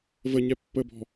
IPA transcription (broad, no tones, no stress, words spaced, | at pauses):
vəɲɛ pːəbɔ̤